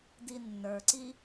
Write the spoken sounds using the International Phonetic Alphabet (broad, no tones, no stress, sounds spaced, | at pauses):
d i nː ə˞ ǀ i